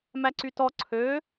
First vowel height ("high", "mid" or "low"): low